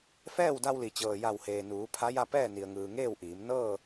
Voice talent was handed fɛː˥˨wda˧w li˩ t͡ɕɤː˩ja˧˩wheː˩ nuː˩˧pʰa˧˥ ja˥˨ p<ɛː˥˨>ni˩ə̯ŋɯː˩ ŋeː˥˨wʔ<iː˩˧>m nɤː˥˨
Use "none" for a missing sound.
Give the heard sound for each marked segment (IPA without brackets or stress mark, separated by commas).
ɛː˥˨, iː˩˧